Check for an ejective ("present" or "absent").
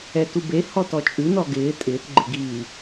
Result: present